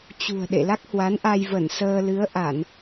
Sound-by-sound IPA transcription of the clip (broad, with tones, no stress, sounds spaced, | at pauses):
t͡ɕ ṳ˨˩ ə̯ ɗ ḛ˧˨ l a˦˥ k̚ h w a˨˦ n ʔ a˧ j v ə˧˩ n s əː˧ l ɨ˨˦ ə̯ ʔ a˧˩˨ n